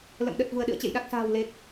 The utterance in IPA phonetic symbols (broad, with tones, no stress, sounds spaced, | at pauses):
l ə̰˧˨ m ɗ ə˨˩ t̚ v u˧˩ ə̯ ɗ ɨ̰˧˨ ə̯ t͡ɕ ḛ˧˨ j ɗ a˨˩ k̚ s a̤ː˨˩ w l e˨˩ k̚